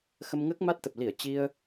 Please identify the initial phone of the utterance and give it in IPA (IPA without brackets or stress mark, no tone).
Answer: x